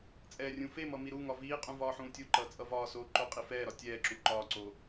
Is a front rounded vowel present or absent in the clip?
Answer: absent